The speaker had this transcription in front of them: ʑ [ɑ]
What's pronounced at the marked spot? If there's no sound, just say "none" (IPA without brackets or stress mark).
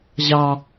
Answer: ɑ